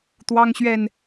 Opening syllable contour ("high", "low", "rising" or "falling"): high